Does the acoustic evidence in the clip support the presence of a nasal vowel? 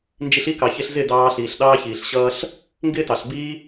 no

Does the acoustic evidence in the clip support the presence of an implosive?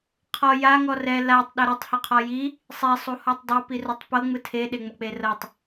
yes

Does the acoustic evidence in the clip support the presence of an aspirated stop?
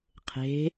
yes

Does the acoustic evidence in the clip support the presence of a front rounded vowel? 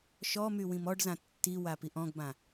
yes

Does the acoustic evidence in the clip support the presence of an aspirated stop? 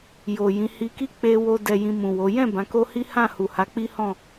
no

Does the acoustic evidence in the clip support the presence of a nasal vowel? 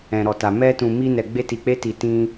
yes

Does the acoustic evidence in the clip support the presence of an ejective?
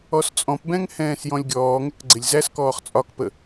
yes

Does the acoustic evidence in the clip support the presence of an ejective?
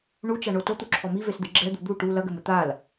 no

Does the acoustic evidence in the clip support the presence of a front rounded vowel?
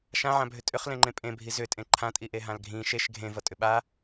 yes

